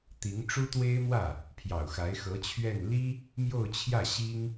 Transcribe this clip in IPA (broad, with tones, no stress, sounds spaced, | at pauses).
t̪ i˧˥ ŋ ʈ͡ʂ u˥ t̪ w e˥ ɪ̯ m w ä˥˩ | pʰ j ɑ˨˩ ʊ̯ x a˧˥ ɪ̯ x ɤ˧˥ t͡ɕʰ ɥ ɛ˥˩ n l i˥ | m j o˥˧ ʊ̯ t͡ɕʰ j ä˥˩ ɕ i˥ ŋ